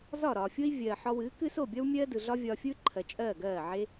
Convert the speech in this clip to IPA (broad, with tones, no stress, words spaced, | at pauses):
zɒ˦˨ɾɒː˨fʲo˦i̯ vʲɜː˨ħɒ˧wɨː˨˦kɨː˦s o˦˨bʲɒ˦w mʲɜː˦dɯ˨ɮɒ˦ vʲɒː˧fʲɯː˦ǃʰɜ˨ t͡ʃʼɜː˦˨ɡɜː˦˨ʕe˦